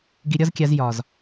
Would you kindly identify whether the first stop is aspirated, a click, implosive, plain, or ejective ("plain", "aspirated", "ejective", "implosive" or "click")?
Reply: plain